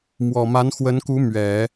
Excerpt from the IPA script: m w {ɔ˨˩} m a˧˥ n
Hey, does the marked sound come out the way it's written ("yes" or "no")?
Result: yes